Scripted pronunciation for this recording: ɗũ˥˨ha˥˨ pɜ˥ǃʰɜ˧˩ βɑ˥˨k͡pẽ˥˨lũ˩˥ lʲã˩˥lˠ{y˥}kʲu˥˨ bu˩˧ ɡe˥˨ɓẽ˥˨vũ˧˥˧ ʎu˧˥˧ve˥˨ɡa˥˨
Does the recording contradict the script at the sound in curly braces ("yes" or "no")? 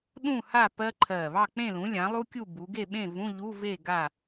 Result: yes